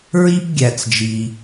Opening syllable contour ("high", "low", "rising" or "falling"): high